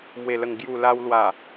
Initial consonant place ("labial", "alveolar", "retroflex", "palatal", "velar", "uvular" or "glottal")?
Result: labial